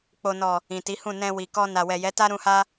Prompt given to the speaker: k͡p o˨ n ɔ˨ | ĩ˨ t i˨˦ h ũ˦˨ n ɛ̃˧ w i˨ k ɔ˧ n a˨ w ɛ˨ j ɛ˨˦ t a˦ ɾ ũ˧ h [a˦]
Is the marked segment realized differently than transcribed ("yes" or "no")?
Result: no